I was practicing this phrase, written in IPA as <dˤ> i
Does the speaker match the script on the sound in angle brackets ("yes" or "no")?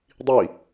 yes